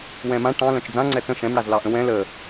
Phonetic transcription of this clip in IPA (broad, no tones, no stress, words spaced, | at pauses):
wɛ̃mã ʈɑ̃ lœ̃t͡ʃd͡zã ŋ͡ǀɛt͡sə̃ ʃɛ̃m ɽazlɑʔə̃wɛ̃ lə